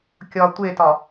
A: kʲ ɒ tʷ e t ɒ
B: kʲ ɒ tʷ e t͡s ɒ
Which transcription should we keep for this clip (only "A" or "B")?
A